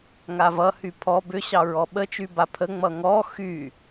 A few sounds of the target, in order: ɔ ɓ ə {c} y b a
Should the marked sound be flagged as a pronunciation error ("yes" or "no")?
yes